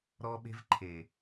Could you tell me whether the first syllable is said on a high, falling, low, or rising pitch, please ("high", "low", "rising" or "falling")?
high